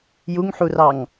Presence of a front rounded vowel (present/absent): absent